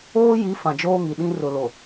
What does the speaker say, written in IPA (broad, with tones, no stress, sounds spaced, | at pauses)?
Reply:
oː˦ j i˨˦ f ã˨ d͡ʒ oː˦ ŋ i˨ ɗ ĩ˦ r ʊ˨ l o˨